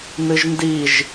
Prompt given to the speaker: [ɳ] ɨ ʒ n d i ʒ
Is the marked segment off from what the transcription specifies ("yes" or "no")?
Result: yes